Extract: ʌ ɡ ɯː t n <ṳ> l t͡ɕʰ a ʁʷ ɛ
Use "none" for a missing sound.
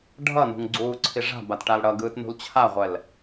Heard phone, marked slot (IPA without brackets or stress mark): ṳ